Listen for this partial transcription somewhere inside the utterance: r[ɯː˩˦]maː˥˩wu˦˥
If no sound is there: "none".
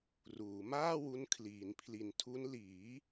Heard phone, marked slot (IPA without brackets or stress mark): uː˩˦